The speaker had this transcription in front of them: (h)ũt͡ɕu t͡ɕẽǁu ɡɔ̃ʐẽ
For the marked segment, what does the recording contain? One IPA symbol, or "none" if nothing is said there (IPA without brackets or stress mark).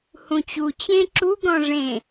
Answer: h